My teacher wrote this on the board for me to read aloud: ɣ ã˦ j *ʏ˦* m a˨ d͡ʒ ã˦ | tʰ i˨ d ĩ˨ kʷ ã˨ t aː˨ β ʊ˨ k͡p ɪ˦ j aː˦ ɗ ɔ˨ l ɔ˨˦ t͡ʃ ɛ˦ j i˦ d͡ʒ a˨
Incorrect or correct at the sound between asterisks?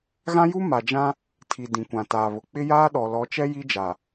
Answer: incorrect: u˦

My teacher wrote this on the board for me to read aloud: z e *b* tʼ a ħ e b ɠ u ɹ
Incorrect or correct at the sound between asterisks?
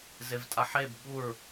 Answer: incorrect: v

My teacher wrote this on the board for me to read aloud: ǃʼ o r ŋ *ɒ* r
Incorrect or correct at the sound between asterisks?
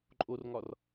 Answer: correct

